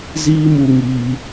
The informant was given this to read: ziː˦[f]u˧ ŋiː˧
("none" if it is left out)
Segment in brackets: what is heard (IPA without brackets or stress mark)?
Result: m